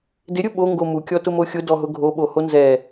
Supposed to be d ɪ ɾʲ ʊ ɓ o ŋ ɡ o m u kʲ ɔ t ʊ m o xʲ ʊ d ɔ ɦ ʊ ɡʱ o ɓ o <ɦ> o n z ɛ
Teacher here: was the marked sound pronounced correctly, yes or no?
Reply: no